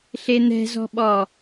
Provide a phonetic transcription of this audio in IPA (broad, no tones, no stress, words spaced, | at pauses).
ɬen̪ɛ̤zɔ̤ɓɔ